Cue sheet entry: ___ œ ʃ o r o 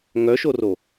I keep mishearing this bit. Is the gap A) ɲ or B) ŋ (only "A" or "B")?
B